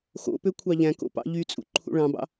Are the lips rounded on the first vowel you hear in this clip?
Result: yes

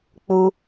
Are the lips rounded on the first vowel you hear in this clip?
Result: yes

